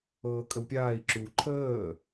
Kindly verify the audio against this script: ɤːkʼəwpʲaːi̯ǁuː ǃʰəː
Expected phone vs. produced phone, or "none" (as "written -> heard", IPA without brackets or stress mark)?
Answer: none